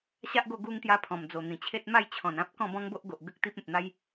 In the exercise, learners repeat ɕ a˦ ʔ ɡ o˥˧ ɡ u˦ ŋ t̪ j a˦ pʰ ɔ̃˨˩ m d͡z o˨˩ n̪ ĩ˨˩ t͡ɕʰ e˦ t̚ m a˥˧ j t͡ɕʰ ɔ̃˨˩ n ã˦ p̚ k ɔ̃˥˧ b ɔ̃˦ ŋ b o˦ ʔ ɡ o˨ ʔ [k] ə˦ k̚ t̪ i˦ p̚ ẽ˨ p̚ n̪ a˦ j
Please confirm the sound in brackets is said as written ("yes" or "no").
no